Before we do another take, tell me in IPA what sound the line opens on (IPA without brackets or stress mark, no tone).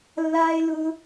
lː